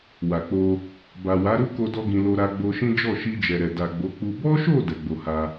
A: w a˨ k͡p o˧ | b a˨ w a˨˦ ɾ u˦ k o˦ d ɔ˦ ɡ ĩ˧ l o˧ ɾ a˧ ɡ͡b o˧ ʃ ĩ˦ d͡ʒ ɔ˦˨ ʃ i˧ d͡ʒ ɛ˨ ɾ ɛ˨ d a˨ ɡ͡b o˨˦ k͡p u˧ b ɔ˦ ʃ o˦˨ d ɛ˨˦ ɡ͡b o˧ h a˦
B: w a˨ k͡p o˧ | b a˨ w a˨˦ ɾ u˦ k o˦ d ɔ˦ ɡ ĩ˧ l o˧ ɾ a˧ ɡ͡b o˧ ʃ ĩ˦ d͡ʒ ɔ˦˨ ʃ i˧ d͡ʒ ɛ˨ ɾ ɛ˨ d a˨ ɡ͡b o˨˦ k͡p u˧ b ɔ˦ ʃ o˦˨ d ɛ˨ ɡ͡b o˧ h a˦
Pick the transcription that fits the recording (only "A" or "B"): A